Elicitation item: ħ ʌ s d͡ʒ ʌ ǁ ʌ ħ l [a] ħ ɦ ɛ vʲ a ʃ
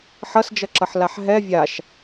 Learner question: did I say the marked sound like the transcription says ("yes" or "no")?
yes